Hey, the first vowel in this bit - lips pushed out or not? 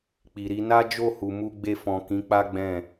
no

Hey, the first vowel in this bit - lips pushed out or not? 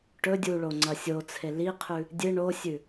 yes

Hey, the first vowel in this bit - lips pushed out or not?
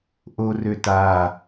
yes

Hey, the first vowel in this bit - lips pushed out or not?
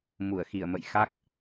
yes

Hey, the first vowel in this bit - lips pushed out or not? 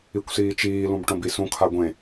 no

